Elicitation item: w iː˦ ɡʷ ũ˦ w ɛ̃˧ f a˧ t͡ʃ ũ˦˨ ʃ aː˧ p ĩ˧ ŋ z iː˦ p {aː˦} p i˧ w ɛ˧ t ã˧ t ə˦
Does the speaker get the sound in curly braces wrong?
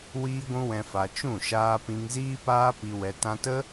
no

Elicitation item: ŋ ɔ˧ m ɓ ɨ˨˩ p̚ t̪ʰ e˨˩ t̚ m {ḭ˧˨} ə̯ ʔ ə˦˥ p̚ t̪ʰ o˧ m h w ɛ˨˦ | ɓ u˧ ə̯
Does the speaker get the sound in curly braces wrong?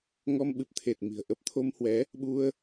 yes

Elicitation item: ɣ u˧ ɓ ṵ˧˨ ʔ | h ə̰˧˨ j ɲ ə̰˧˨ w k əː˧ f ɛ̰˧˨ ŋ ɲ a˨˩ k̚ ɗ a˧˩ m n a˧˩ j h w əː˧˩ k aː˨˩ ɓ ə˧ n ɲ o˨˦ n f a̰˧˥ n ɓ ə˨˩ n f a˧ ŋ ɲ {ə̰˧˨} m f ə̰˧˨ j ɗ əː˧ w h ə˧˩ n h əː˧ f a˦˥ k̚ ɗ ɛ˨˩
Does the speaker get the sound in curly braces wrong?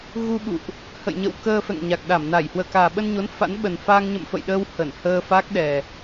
no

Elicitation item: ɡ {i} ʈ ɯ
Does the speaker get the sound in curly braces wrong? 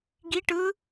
no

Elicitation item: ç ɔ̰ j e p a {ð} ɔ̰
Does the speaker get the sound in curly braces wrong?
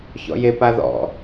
no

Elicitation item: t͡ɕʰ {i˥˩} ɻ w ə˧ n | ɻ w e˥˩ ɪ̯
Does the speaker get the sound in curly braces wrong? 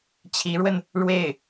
yes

